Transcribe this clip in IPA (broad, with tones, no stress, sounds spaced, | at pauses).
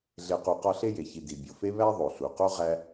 ɮ e˨ q u˨ q ɒ˦ ɬ e˥ j e˩ ç i˨ d i˩ bʲ o˩ f e˥ β æ˥ ðˤ o˩ ɬ u˩ q o˥ ʁ æ˦